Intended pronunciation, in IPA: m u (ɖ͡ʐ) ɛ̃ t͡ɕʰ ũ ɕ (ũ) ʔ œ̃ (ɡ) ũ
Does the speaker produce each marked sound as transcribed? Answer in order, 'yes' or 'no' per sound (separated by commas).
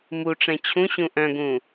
no, yes, yes